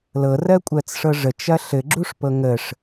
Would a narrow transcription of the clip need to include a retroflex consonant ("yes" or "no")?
yes